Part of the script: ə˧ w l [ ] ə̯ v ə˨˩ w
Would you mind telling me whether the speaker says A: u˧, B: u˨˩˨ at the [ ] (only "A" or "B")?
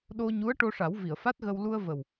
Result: A